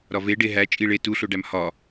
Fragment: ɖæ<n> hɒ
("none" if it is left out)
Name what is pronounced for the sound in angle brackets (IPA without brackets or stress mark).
m